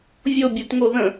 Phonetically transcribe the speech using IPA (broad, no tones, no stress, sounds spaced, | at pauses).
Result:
vʲ o bʲ u t ŋ o ð ə̃